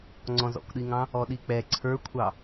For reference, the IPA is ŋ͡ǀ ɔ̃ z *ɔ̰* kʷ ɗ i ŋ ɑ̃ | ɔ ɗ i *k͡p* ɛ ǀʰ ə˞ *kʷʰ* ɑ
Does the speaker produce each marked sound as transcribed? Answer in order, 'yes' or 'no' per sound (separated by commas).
yes, yes, yes